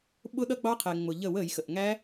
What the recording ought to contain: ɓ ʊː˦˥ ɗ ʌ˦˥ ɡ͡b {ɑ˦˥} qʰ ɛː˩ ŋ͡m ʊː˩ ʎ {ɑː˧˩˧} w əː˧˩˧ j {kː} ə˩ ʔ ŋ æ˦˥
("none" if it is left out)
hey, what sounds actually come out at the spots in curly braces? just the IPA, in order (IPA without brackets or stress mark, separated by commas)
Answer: ɑ˦˥, əː˧˩˧, x